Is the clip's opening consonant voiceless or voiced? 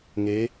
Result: voiced